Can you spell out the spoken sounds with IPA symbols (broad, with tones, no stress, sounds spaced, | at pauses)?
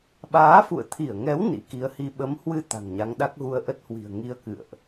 ɓ aː˨˦ f ṵ˧˨ ə̯ t̪ʰ i˧˩ ə̯ ŋ ɛ˨˦ w n ḭ˧˥ k i˨˦ ə̯ h i˧ ɓ ə˨˦ m h w ɨ˧ t̪ a̤˨˩ ŋ ɲ a˨˦ ŋ ɗ a˦˥ k̚ ɣ u˧ ə̯ ʔ ə˦˥ t̚ h w i̤˨˩ ə̯ ŋ i˧ ə̯ k ɨ̰˧˨ ə̯ ʔ